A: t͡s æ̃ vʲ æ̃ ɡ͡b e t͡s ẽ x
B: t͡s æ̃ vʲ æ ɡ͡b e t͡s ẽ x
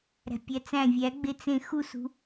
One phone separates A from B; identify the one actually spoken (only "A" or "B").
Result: B